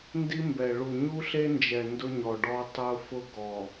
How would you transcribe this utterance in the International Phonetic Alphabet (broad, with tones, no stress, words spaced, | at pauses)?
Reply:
ndi˦mbɛ˨ ɭu˨ɲu˦ɬe˦nd͡ʒɛ˨ ndʊ˦ɲɔ˨ɖɔ˦ tˤʊ˦fʊ˦ ɡɔ˨